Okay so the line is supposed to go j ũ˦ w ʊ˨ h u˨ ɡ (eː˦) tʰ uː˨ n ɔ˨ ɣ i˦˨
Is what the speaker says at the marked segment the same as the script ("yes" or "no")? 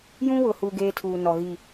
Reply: yes